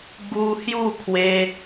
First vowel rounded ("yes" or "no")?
yes